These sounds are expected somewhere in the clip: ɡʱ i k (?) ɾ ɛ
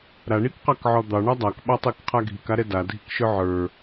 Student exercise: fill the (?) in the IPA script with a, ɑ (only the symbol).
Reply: a